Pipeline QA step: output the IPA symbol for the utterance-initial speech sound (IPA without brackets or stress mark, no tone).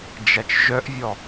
d͡ʒ